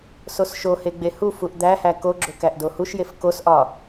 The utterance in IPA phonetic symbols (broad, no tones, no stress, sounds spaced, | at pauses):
s o s ʃ o h e ɡ͡b e h u f u ʔ d̪ æ h æ k o ɡ͡ǁ o k æ ʔ d o h u ʃ j e f k o s ʔ ɒ